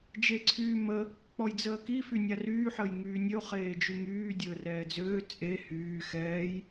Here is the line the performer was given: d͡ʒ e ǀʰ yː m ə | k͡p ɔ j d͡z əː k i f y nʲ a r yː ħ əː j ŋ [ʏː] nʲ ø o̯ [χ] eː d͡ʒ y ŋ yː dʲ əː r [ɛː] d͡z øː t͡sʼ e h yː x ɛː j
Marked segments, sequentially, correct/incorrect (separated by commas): incorrect, correct, correct